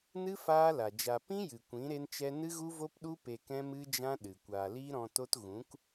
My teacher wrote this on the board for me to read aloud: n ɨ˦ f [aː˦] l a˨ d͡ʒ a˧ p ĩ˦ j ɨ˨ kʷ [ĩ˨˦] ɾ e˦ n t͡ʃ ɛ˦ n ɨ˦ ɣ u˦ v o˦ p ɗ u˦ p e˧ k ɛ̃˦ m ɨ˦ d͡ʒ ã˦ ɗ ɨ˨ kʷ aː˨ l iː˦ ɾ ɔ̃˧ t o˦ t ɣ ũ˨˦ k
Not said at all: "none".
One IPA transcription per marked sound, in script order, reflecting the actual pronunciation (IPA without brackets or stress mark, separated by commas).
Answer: aː˦, ĩ˨˦